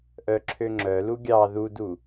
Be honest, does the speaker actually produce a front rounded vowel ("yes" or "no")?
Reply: yes